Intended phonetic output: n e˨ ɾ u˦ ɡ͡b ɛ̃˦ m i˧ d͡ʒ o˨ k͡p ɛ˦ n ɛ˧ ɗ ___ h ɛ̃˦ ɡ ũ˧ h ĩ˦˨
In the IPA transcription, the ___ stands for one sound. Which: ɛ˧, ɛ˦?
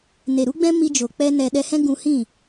ɛ˧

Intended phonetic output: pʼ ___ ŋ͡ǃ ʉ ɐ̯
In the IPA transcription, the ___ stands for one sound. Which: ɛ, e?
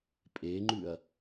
e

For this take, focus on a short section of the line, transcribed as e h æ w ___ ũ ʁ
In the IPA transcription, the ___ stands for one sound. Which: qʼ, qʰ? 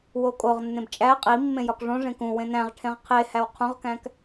qʰ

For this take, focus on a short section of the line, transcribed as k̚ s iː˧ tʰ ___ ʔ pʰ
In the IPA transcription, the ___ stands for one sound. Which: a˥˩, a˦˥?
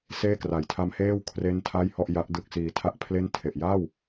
a˥˩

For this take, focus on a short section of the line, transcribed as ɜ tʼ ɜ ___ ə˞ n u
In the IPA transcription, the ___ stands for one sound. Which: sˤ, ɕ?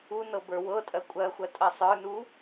sˤ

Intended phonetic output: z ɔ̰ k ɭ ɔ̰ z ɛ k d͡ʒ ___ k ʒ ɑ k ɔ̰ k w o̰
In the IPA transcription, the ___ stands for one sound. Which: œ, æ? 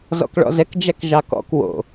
æ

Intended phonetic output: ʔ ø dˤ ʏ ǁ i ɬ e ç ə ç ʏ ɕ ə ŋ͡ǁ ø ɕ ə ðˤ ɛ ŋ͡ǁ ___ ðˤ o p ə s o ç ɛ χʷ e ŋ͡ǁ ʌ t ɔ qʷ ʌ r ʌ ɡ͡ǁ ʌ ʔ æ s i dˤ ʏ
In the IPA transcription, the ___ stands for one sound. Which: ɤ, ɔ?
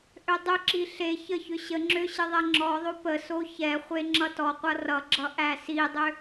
ɔ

